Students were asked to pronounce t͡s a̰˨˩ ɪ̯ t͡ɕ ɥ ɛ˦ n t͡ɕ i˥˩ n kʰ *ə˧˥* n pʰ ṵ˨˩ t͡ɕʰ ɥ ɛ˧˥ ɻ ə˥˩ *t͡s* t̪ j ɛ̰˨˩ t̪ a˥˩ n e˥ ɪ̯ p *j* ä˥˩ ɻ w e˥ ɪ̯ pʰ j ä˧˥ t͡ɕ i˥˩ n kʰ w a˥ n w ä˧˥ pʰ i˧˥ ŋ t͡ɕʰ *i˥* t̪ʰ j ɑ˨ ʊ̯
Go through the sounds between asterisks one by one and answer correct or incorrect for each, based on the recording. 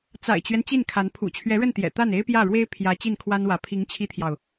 incorrect: a˧˥, incorrect: n, correct, correct

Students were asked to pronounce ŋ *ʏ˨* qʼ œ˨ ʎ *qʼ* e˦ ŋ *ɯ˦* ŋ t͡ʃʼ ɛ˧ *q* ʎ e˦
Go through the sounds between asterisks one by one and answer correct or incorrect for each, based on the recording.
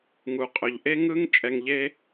incorrect: u˨, incorrect: ʔ, correct, incorrect: ŋ

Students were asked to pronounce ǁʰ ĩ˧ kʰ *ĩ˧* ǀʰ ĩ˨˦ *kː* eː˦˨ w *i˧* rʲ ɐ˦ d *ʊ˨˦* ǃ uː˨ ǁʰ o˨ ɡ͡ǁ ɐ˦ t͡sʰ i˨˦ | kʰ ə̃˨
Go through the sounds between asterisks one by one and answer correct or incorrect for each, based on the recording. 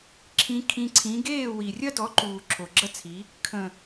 correct, incorrect: ɡ, incorrect: i˨, incorrect: ɔ˨˦

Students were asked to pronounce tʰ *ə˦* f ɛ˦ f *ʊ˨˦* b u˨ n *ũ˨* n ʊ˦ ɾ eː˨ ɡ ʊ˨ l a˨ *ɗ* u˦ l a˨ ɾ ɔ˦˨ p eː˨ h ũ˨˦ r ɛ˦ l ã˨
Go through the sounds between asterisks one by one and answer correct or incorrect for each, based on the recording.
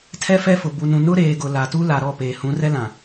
incorrect: ɛ˦, incorrect: ʊ˨, correct, incorrect: t

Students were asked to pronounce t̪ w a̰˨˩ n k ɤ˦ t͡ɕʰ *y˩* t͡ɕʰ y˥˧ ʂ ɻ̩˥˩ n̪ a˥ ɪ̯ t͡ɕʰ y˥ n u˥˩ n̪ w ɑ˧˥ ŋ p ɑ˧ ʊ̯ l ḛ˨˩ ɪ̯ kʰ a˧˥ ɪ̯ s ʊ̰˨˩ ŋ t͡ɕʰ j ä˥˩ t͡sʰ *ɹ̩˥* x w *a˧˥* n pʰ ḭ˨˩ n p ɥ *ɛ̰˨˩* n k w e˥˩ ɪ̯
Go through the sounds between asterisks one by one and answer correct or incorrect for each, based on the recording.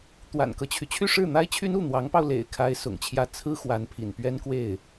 correct, correct, correct, incorrect: ɛ˥

